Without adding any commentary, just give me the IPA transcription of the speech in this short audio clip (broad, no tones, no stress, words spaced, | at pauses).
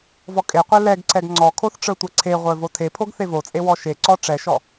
vɔkʼeqʷɛ lɛɡǀɛɡ ŋ͡ǀɔkʰoθ ʈ͡ʂə˞tʷɛǀʰeʁʷə˞ votʰepʰoɡ θevot͡sʼe wɔʃeǀɔ ʈ͡ʂɛʃɔ